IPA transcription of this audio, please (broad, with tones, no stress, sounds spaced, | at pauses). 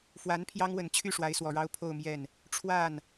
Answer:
f w a˧˥ n pʰ j ɑ˥ ŋ w ə˨˩ n t͡ɕʰ y˥˩ ʂ w a˧˥ ɪ̯ s w ɔ˨˩ ɻ ɑ˥ ʊ̯ pʰ o˥˧ ʊ̯ m j ɛ˥˩ n | ʈ͡ʂʰ w a˥˩ n